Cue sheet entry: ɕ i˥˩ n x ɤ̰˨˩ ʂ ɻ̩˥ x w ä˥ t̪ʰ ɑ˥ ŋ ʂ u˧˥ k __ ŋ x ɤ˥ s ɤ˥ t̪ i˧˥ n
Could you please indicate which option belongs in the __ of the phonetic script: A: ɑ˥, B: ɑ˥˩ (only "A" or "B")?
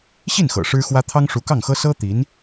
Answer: B